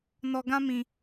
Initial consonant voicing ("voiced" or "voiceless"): voiced